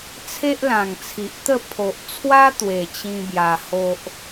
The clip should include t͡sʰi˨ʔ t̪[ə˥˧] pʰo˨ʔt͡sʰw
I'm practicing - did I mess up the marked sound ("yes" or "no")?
no